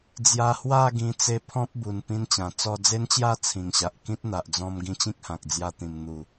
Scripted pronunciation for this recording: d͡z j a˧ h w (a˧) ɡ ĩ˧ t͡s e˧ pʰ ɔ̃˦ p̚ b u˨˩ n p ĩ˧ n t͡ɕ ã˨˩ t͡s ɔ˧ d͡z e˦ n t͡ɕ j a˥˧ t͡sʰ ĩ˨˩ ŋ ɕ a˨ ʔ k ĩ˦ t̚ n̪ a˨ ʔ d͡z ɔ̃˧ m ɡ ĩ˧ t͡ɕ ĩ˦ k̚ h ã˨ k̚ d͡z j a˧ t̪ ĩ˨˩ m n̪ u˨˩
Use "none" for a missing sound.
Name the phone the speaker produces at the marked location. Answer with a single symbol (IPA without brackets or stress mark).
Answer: a˥˧